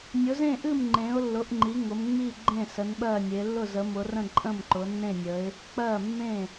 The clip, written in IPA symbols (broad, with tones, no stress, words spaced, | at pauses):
nʲʊ˨˦zẽ˥˩ʔɨ˥˩m ŋ͡ǃẽ˨˦ʊ̯lːʊ˨˦ʔŋ͡ǃi˨˦ ŋʊ˨˦m ŋ͡mi˥˩ ɡ͡ǃẽ˥˩ sə˨˦nɓɜ˥˩nʲe˨˦ lːʊ˥˩zə˨˦mʊ˨˦rə̃˥˩ ǃʼə̃˥˩mǃʊ˨˦nːẽ˥˩nʲə˨˦ɪ̯ | k͡pɜ˥˩mːẽ˥˩